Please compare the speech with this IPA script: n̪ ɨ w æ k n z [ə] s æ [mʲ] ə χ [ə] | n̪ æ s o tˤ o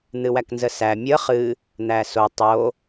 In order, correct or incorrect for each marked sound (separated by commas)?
correct, correct, incorrect